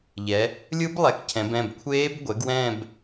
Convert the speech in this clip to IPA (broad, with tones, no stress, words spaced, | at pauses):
ʎɛ˩˧ | lʲɯ˦˥blˠɛ˩˥kcʰɛ̃˩˧b ɛ̃˩˧˩bkʷʰeː˦˥b ɡʷɛ˩˥ɡ wɛ̃ː˥˧b